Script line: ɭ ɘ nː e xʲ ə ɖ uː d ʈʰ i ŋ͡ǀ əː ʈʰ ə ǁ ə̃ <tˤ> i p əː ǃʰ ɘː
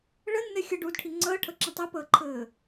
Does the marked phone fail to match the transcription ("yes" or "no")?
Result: no